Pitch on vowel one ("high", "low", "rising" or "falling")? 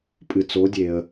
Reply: low